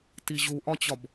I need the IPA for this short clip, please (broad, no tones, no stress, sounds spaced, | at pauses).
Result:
t i ʑ u ʔ ɒ t͡ɕ ɒ b